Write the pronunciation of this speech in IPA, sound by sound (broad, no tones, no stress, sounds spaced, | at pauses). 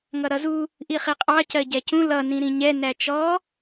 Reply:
ŋ ʌ ɾ ʌ z u | ʔ i χ i qʼ ɑ c ɜ ɟ æ c ũ l ʌ n ĩ ɾ ĩ ɲ ɛ n æ t͡ʃ ɔ